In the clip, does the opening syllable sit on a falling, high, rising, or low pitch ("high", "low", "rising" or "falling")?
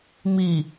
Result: low